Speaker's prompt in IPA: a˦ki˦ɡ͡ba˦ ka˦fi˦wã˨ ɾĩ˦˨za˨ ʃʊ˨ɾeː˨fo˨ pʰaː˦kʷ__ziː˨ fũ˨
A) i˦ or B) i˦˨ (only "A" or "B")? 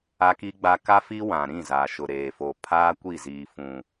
B